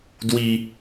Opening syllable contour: low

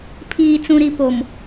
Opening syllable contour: low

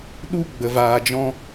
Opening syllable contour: high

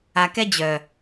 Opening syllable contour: low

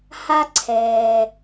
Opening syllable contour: high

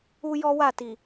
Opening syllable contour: high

